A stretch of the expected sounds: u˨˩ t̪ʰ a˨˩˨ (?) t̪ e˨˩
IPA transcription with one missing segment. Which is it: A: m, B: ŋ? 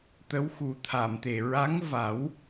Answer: A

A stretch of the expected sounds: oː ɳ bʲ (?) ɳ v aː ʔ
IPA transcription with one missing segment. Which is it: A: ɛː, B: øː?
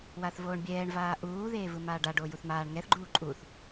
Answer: A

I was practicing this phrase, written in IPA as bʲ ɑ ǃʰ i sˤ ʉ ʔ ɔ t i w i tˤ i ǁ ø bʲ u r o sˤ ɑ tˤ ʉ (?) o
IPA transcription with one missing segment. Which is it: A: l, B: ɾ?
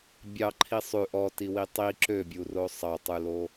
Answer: A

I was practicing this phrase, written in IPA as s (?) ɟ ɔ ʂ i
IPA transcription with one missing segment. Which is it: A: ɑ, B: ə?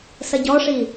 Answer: B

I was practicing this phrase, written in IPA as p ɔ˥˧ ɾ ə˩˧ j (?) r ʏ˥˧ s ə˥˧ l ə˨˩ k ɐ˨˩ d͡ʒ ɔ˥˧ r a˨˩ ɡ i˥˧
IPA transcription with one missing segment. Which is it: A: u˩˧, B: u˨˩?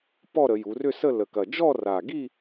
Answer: A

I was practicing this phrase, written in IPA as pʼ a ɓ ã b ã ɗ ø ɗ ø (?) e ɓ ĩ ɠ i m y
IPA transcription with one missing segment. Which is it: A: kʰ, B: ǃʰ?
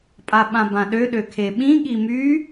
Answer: A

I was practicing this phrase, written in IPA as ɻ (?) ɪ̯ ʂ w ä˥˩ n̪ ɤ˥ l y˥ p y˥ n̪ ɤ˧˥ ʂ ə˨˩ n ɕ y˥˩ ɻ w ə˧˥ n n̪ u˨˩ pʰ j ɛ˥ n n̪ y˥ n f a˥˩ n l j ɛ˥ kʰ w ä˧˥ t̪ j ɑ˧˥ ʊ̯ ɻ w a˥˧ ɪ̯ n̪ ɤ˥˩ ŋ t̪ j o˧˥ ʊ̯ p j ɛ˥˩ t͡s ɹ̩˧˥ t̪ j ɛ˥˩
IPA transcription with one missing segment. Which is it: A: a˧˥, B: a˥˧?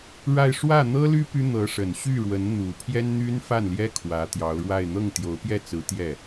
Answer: B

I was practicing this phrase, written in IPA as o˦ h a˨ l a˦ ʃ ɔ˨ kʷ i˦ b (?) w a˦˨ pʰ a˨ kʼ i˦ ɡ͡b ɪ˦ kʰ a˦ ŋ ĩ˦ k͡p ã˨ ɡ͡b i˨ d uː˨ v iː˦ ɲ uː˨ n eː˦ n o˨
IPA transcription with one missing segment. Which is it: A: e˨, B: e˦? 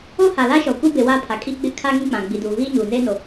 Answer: A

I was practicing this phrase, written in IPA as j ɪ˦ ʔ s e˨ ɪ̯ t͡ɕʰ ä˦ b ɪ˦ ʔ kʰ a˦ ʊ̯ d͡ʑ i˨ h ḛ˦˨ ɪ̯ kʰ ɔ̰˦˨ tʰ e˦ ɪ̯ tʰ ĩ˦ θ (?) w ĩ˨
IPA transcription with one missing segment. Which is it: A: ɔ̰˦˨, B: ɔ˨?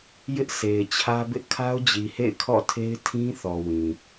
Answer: B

